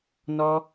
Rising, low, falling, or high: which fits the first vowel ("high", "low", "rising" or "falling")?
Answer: high